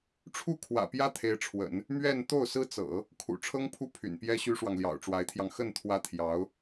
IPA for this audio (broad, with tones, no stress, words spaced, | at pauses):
ʈ͡ʂʰu˥˩ kʰwä̰˨˩pjä˥ t̪ʰe˧˥ɪ̯ʈ͡ʂʰwə̰˨˩˦n | mɥɛ˥˧n t̪o˥˩ʊ̯sɹ̩˥t͡sɤ̰˨˩˦ | kʰṵ˨˩ʈ͡ʂʰɤ˥ŋpʰu˥˩ pʰy̰˨˩npjɛ˥ɕy˥ʂwɑ˨ŋ ljɑ̰˨˩ʊ̯ʈ͡ʂwa˧˥ɪ̯t̪ʰjɑ˧ŋ xə˥˩n t̪ʰwä˥ t̪ʰjɑ˧˥ʊ̯